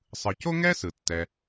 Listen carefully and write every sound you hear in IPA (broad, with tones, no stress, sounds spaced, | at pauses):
sˤ ɯ˩ c o˥ ŋ ɛː˥ s ɯ˩ tː ɛ˩